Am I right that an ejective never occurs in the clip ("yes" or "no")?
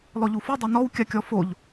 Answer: yes